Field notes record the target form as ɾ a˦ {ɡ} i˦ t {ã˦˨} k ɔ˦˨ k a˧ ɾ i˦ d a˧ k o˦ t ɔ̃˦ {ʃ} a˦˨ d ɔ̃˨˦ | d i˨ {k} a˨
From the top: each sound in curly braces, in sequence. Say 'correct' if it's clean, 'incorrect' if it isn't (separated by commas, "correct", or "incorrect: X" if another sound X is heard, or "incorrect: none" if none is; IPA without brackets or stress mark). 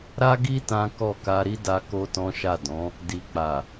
correct, incorrect: ã˦, correct, incorrect: k͡p